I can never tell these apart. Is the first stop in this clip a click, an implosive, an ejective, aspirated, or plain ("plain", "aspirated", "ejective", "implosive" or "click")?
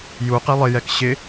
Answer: plain